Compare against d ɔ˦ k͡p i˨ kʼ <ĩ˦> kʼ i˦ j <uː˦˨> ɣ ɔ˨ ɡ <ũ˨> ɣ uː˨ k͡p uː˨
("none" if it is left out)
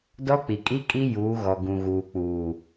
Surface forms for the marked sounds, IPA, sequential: i˦, uː˨˦, ũ˨

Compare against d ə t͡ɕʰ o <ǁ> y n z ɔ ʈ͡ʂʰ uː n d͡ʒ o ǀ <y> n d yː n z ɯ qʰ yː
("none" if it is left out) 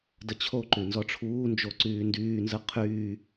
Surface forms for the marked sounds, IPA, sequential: ǃ, yː

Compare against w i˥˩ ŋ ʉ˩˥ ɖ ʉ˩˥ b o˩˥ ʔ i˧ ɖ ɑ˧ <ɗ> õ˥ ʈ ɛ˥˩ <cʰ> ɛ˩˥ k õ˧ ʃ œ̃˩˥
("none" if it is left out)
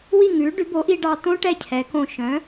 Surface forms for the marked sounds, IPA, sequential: t̪, cʰ

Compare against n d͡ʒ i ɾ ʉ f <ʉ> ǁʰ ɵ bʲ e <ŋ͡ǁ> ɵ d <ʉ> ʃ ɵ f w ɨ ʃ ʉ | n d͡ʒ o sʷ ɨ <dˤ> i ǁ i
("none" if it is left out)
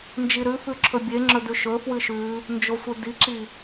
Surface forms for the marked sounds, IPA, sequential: ʉ, ŋ͡ǁ, ʉ, d

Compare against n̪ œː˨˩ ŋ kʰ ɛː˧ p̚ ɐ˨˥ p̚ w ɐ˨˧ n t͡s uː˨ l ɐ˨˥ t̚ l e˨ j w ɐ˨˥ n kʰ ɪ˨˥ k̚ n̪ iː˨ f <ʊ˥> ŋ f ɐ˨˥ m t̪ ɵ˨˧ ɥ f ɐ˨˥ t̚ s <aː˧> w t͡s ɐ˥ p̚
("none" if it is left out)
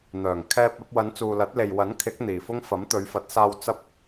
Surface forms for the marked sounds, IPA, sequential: ʊ˥, aː˧

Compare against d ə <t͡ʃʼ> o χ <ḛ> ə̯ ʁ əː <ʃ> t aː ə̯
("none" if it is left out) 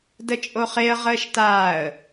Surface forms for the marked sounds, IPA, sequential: t͡ʃʼ, e, ʃ

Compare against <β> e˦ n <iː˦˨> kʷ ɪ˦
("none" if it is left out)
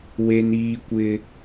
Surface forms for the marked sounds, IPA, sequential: w, iː˦

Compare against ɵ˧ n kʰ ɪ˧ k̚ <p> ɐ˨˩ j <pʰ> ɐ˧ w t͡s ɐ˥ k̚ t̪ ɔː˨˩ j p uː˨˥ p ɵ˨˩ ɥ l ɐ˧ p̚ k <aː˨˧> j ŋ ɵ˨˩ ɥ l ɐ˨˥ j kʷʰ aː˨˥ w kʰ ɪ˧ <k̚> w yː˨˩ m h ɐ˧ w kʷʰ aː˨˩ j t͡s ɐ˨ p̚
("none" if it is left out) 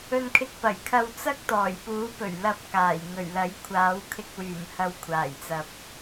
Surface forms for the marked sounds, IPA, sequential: p, kʰ, aː˨˩, k̚

